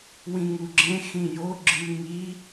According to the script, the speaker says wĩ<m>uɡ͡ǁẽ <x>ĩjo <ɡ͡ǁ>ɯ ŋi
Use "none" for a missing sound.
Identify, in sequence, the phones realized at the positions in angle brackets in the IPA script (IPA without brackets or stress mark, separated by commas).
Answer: ŋ, x, ɡ͡ǁ